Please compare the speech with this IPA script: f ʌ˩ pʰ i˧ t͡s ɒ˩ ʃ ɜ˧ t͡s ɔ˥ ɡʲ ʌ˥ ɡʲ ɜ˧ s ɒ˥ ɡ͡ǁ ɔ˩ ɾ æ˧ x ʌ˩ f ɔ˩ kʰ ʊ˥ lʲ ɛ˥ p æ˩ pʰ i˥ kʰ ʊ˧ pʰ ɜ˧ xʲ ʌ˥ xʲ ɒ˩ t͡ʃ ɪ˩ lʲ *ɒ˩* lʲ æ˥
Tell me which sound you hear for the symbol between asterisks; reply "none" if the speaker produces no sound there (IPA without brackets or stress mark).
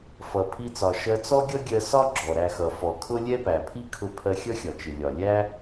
ɒ˩